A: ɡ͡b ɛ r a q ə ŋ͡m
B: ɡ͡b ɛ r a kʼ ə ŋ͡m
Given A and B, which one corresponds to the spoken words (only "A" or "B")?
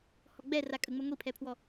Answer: B